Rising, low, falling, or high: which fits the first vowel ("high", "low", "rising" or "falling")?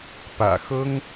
low